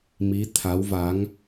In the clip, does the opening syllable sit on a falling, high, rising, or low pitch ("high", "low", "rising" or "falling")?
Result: rising